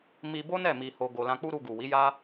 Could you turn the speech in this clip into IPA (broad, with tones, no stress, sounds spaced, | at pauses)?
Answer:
m i˧ b o˦ n ɛ˦˨ m i˧ h o˧ ɡ o˨ l ã˧ k͡p u˦ ɾ u˧ ɡ u˨ w i˨˦ j a˦